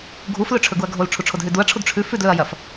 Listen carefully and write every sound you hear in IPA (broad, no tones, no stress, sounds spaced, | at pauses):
ɡʱ u f l ɵ ʈ͡ʂʰ ɵ ɡ u ɐ̯ ɡʱ o l ʈ͡ʂʰ u ʈ͡ʂʰ o d ɦ ʉ d u ɐ̯ ʈ͡ʂʰ u d ʈ͡ʂʰ ʉ f ʉ d l ɵ ɐ̯ j ɐ f